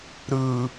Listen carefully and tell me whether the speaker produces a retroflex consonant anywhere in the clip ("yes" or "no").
no